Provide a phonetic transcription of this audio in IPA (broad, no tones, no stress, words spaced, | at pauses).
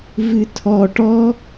vɨtʰɔ ʈɔ